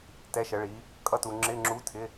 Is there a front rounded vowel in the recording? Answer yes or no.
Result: no